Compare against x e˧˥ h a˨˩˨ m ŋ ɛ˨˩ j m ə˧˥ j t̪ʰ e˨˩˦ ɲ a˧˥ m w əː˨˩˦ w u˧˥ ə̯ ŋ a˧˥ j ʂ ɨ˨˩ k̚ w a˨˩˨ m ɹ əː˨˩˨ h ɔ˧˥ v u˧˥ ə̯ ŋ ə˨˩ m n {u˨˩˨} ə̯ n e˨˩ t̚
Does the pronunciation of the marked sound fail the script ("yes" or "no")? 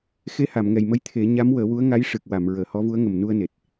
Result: yes